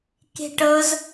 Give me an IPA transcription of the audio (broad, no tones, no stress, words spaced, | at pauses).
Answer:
ke̤ʈɤz